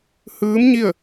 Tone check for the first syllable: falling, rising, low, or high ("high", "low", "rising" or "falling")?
rising